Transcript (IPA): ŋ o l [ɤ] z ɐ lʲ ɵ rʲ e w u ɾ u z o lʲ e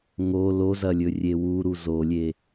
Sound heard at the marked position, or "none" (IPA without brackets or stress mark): o